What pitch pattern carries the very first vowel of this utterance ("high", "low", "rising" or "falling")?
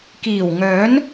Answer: low